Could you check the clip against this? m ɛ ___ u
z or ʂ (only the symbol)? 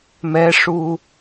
ʂ